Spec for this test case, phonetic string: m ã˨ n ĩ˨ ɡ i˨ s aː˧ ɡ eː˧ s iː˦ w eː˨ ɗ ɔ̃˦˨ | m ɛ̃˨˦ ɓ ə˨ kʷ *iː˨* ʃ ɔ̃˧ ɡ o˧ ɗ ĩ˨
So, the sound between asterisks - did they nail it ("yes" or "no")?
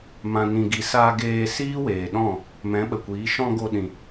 no